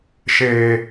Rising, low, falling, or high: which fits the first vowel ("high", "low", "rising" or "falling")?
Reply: low